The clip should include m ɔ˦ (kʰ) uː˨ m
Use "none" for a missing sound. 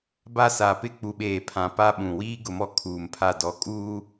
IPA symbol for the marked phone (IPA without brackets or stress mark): kʰ